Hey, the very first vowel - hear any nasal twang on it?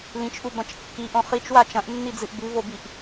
yes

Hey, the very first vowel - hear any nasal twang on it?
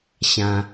yes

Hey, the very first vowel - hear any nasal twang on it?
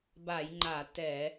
no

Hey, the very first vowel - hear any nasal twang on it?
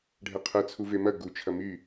no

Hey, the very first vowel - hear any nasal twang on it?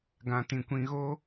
yes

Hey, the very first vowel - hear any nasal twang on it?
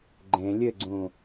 yes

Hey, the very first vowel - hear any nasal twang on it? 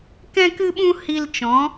yes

